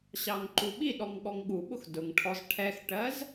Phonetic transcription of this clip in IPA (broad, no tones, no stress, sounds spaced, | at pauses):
ɕ ɑ ŋ ǃ u ɓ i ɗ ɔ ŋ ɠ ɔ ŋ ɠ u ɓ ʊ x d ʊ ŋ ʈʰ ɔ z ʈʰ ɛ x ʈ ɜ z